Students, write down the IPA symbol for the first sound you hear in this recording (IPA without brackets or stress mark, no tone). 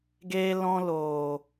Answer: ɡ